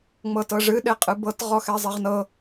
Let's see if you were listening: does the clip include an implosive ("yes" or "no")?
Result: yes